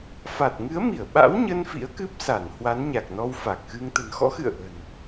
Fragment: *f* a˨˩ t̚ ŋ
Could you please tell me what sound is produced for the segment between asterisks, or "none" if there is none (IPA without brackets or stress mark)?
f